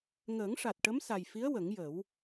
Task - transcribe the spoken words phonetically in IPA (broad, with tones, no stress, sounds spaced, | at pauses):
ŋ əː˨˩˦ ŋ ʂ a˨˩ t̚ ʈ ə˧˥ m s a˨˩ j f i˧˥ ə̯ w ə˨˩˦ ŋ j ə˨˩˦ w